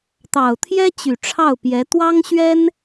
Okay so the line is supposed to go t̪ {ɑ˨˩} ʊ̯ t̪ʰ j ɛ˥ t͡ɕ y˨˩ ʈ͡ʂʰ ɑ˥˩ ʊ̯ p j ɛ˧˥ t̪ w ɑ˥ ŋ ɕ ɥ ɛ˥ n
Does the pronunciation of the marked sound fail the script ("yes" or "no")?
no